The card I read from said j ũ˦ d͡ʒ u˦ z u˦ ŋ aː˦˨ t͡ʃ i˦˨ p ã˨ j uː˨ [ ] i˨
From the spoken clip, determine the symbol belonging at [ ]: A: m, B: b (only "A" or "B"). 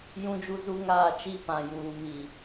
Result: A